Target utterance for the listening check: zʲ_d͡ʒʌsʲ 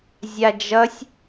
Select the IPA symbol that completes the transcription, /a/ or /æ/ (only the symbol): a